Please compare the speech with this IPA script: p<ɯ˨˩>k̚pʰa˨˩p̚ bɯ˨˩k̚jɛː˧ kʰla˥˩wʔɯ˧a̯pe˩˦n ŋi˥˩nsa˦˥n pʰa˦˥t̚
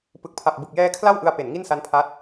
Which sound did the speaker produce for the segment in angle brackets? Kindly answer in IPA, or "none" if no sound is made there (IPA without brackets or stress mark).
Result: ɯ˨˩